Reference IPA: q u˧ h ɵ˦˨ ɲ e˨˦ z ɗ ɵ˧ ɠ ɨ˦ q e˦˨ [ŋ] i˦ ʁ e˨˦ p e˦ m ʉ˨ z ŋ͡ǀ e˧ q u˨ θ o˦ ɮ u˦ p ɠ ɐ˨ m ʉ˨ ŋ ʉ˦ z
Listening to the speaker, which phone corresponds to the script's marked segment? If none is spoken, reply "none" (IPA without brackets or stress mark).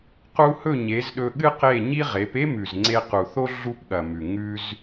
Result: ɲ